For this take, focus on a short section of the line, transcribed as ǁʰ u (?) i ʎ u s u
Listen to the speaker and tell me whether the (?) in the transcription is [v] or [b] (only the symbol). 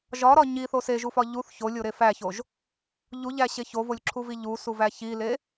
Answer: v